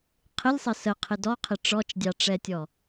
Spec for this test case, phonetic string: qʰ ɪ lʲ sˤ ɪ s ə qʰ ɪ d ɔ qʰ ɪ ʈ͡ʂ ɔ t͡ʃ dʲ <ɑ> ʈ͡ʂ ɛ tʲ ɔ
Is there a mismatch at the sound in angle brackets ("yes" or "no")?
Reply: no